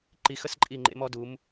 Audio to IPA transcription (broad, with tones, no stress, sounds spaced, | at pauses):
ǃ i˩˧ x ə˧ s ǃʼ i˧˩ ŋ͡ǃ ḛ˩˧ m ɔ˩˧ d u˩˧ m